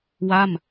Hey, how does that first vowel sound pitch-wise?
falling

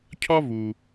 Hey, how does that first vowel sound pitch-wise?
high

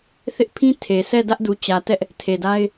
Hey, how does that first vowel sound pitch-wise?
high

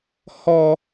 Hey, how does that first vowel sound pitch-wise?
high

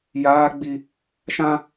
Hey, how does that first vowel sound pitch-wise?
high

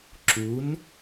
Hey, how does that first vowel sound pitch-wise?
rising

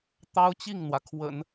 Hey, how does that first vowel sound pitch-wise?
high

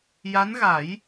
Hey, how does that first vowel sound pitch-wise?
rising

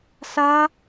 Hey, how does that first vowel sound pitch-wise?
high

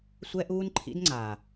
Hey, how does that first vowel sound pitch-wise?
high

